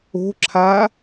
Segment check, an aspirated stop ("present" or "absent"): present